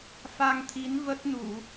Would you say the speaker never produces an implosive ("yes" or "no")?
yes